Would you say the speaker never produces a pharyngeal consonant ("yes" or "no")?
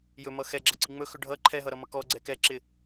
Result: yes